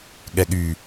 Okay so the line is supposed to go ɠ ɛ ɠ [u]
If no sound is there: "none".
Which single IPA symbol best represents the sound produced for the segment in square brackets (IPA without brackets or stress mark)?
y